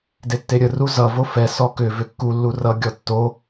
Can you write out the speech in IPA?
d e tː e ɾʲ ə r u z ʌ v o f ɛ s ɔ k ʏ v ʏ kː u lː u r ʌ ɡʲ ɔ tː o

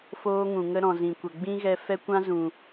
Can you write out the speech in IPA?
f oː˦ ŋ ũ˨ ŋ ə˦ ɾ ɔ̃˨ z ĩ˨ kʷ ə˨ ɡ͡b ĩ˦ ɣ ɛ˧ f ɛ˦ kʷ ã˦ z ũ˨

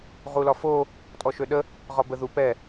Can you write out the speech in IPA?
ʁ u l ɒ f o | tʼ ɔ ʃ ø ɗ ə | ʁ ɒ b ə ð u p ɛ

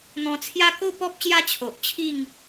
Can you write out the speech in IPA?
n̪ ɔ̃˧ t͡sʰ j a˦ k o˥˧ p ɔ˦ p̚ ɕ j a˦ t͡ɕʰ o˨ ʔ t͡ɕʰ i˥˧ ŋ

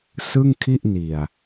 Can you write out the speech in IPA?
s ɯ˥˩ ŋ kʰ i˥˩ ʔ n i˨˩ a̯

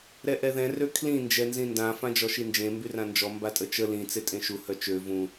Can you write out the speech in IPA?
ɾ ɛ ʔ ɛ ð ɛ̃ r ø kʰ l ĩ n d͡ʒ ɛ n z ĩ n d ã f ã d͡ʒ ɔ ʃ i n d͡ʒ ẽ m b y r ã n d͡ʒ ɔ m b a tʼ ə t͡ʃ ə l ĩ t͡s e tʼ ẽ ʃ u h œ t͡ʃ ø v ũ

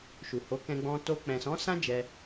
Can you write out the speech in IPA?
ʃ u˨ h o˨˦ k ɛ̃˧ ɡ͡b ɔ̃˧ t o˧ k͡p ɛ̃˨ s ɔ̃˨˦ s ã˦ d͡ʒ ɛ˧

